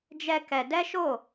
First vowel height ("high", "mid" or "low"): mid